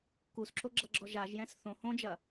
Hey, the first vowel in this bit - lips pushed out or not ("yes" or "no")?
yes